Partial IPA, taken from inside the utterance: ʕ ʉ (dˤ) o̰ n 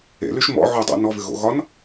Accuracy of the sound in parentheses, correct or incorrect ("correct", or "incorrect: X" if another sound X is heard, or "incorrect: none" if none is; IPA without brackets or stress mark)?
correct